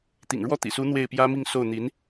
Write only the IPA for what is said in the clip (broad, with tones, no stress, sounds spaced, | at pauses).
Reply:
t̪ ḭ˨˩ ŋ ɻ w ɔ˥˩ t̪ ḭ˨˩ s u˧˥ n̪ w e˥˩ ɪ̯ p j ä˥ m i˥˧ ŋ s o˥˩ ʊ̯ n̪ i˧˥ n